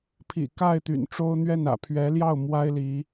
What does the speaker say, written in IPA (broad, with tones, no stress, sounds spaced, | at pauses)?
pʰ ḭ˨˩ k a˥˩ ɪ̯ t̪ y̰˨˩ n ʈ͡ʂ o˥ ʊ̯ n̪ ɥ ɛ˥˩ n ä̰˨˩ pʰ ɥ ɛ˧˥ l j ɑ˥˩ ʊ̯ m w a˥ ɪ̯ l i˧˥